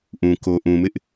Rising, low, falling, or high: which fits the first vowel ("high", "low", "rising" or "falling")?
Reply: low